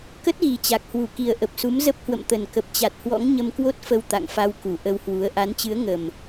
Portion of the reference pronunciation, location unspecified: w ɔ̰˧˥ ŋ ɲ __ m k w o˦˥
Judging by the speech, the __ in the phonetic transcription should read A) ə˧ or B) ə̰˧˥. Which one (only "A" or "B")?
A